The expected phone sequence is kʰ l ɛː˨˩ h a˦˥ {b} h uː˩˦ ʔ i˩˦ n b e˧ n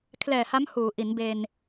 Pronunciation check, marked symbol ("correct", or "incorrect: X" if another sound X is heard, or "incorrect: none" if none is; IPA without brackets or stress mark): incorrect: m